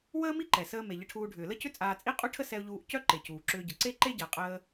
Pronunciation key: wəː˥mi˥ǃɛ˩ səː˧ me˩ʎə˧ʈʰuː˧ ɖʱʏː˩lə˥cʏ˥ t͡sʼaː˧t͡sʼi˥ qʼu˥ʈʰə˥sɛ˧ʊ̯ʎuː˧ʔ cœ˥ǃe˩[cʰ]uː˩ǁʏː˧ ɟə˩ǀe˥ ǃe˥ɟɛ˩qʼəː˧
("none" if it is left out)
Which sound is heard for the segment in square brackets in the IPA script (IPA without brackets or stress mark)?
c